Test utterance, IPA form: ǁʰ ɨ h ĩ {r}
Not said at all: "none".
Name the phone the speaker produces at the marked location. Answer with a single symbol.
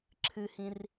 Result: r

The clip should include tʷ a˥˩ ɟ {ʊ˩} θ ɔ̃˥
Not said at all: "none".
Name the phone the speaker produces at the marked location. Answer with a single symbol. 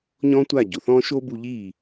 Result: ʊ˩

